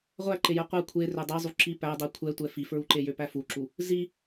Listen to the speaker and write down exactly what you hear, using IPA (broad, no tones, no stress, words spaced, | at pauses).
ʁʷæǃejɛ qʷɛ kʷʰe rødˤi zˤuǁi pædˤi kʷʰɛtʷɛ fifɹuǃejø pæfuǁu | zi